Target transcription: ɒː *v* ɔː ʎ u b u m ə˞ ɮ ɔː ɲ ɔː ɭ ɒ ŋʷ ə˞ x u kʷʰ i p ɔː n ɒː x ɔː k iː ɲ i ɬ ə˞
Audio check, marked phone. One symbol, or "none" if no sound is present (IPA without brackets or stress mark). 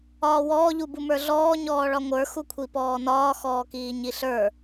w